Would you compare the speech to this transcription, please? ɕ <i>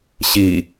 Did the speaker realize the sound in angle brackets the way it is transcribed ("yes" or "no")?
yes